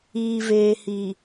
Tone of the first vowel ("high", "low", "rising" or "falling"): low